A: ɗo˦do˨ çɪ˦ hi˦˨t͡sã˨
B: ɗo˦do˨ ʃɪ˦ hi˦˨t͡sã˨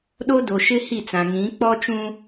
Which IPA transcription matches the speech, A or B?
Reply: B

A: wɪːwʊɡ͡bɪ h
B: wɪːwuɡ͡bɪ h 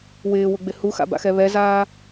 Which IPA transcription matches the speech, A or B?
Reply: A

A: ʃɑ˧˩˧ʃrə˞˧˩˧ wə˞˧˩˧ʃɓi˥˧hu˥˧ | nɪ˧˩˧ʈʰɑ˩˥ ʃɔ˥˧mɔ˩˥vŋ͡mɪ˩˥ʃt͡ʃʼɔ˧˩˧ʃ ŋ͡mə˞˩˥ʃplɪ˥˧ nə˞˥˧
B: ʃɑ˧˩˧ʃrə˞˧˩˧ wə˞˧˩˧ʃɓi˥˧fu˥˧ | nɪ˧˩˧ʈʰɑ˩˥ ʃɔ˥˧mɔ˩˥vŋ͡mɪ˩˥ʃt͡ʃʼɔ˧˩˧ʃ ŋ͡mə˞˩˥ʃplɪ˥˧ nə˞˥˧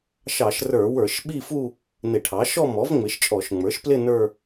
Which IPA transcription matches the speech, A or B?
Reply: B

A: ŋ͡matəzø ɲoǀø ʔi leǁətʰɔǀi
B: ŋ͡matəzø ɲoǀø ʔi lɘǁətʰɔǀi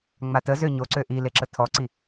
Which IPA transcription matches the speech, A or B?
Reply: A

